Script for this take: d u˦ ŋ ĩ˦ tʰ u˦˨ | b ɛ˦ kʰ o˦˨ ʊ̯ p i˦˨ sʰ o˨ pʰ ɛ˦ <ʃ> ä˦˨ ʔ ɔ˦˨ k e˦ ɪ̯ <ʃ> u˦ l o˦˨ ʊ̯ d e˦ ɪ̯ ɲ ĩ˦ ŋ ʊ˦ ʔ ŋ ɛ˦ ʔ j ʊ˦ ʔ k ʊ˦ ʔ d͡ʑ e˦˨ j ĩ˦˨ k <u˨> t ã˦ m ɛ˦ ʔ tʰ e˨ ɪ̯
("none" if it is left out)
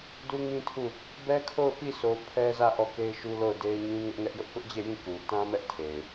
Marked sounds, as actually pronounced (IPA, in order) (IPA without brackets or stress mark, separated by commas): z, ʃ, u˨